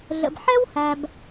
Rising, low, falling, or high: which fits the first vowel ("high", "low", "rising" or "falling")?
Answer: low